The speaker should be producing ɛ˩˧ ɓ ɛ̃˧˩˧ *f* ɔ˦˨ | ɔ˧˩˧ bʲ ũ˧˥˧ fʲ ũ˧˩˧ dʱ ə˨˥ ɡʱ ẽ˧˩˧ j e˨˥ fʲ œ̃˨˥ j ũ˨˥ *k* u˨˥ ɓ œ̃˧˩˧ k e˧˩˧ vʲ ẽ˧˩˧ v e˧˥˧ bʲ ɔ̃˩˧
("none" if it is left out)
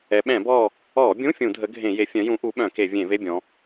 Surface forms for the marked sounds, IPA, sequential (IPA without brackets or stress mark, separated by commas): b, ʔ